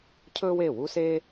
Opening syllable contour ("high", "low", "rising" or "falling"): high